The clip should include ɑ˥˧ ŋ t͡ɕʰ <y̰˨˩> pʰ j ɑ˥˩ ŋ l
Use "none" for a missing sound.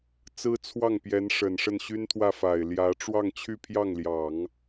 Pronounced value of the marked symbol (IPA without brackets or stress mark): y˥˧